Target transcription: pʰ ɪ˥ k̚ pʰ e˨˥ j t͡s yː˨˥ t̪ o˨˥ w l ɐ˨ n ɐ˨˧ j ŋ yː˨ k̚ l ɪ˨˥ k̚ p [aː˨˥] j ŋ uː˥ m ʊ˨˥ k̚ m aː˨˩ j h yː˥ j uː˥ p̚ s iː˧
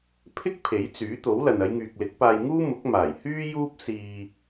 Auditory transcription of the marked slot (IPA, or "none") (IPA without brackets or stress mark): aː˧